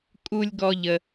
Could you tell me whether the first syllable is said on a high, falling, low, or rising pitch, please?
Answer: low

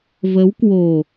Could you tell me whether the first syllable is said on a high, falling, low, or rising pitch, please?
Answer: rising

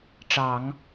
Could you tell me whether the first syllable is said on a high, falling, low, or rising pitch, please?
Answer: low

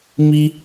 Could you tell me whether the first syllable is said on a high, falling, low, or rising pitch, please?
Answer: high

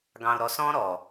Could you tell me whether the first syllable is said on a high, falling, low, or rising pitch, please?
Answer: low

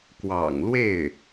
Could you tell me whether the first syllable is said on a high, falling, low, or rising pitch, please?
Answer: low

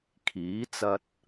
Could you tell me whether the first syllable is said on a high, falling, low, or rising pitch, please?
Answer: rising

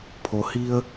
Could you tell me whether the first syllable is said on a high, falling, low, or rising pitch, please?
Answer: low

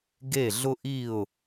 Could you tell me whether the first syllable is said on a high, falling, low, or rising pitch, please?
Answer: falling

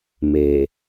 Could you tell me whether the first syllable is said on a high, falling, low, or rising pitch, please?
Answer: low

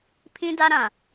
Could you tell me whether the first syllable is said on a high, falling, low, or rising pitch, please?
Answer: high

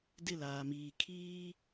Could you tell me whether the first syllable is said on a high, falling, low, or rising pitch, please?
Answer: falling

